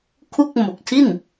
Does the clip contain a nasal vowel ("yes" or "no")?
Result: no